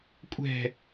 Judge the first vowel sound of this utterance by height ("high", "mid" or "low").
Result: mid